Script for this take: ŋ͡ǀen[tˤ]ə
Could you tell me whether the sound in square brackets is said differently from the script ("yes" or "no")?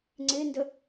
yes